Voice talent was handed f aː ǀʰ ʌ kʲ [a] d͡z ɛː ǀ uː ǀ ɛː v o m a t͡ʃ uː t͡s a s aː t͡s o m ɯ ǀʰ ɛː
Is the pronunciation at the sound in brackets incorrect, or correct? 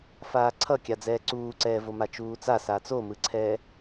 correct